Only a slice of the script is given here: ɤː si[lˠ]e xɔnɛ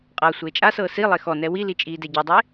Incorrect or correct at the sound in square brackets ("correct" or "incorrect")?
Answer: correct